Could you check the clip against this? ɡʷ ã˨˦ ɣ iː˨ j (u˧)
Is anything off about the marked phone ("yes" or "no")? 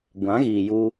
no